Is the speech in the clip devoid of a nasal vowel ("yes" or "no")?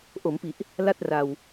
yes